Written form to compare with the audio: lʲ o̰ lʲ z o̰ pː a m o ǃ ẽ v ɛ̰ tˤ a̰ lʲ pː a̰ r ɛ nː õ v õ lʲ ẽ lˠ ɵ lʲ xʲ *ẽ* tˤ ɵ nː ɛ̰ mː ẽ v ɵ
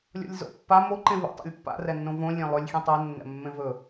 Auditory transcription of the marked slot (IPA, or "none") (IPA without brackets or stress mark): ẽ